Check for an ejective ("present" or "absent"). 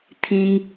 absent